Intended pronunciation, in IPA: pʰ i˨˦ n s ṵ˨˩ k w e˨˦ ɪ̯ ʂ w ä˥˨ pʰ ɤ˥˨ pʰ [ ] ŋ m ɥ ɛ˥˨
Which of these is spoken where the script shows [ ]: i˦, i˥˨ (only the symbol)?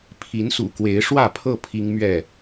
i˦